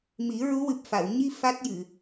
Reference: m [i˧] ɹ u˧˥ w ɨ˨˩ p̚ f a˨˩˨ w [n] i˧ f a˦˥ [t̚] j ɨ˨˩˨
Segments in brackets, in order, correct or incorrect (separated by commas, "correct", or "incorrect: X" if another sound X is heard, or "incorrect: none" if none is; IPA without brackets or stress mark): incorrect: i˨˩˦, incorrect: ɲ, correct